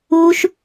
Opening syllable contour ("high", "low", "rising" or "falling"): high